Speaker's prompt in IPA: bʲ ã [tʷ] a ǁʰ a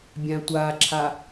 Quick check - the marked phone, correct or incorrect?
correct